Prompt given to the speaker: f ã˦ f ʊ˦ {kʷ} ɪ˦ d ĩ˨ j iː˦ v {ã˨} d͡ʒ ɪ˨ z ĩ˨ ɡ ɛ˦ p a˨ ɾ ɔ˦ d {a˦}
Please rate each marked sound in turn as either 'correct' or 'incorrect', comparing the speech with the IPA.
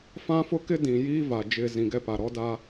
incorrect, incorrect, correct

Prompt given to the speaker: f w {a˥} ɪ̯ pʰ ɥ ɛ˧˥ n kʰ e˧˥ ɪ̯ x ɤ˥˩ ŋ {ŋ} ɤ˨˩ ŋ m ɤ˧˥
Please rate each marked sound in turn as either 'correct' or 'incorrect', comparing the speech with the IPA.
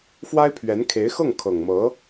correct, incorrect

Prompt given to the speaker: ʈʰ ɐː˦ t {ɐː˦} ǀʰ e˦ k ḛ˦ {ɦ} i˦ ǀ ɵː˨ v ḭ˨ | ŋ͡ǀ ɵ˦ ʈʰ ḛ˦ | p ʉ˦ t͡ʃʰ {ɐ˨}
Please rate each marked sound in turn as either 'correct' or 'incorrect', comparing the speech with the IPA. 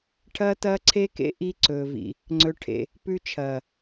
correct, incorrect, incorrect

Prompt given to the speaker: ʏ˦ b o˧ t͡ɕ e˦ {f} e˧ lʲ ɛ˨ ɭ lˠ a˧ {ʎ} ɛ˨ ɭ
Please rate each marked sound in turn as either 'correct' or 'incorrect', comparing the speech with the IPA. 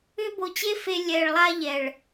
correct, correct

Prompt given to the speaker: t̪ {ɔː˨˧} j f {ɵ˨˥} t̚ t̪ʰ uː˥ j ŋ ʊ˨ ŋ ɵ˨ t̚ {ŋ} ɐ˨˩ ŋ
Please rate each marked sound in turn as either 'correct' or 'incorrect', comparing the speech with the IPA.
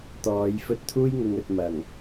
correct, incorrect, incorrect

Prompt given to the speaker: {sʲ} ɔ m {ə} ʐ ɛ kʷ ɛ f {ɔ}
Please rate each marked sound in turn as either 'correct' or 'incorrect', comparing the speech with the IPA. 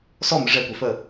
incorrect, correct, incorrect

